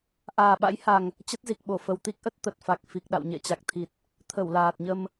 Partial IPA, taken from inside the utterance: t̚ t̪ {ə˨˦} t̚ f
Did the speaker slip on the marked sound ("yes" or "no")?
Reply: yes